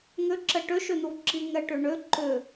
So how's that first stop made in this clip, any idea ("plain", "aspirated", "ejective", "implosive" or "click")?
click